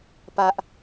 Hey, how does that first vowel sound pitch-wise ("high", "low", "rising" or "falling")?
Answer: high